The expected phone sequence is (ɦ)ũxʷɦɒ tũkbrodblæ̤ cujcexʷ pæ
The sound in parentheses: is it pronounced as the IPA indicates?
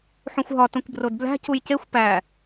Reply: no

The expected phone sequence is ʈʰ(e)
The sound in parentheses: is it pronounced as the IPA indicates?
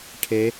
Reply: yes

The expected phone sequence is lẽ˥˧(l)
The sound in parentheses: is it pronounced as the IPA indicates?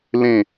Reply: no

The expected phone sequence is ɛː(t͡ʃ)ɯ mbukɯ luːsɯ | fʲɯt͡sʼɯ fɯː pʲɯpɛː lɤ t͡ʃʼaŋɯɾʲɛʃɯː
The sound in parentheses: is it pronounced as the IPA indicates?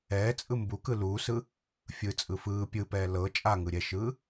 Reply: no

